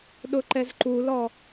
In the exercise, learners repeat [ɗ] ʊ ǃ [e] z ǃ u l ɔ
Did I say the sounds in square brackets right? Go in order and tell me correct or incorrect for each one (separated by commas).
correct, incorrect